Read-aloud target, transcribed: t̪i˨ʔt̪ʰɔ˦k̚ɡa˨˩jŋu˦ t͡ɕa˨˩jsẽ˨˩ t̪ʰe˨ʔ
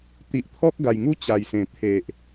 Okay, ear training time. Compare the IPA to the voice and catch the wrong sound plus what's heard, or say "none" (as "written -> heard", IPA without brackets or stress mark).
none